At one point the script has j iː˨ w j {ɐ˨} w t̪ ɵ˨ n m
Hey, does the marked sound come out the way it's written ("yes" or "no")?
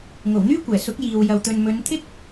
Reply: yes